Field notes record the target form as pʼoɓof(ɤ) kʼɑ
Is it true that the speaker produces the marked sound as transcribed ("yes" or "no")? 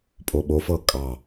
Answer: yes